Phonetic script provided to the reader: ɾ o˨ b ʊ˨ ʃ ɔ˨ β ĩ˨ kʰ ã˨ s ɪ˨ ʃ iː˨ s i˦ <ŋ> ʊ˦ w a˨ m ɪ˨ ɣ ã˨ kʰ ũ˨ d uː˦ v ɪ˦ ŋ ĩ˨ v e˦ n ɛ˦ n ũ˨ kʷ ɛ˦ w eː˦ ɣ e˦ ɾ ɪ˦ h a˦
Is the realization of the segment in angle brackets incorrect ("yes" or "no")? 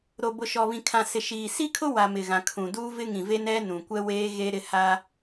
yes